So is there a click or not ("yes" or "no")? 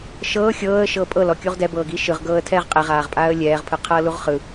no